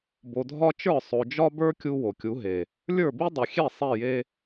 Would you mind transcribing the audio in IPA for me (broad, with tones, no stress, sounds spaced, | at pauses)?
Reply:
b o˨ dʱ ɒ˦ t͡ʃ ə˞˦˨ sˤ o˨ d͡ʒ ɒ˦ b ə˞˦ kʲ u˦ w o˨ kʲ u˨˦ ɦ e˨ | lʲ ə˞˦˨ b i˦ dˤ i˨ xʲ e˦˨ sˤ e˦˨ j e˦